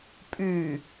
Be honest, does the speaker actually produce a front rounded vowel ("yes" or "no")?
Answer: yes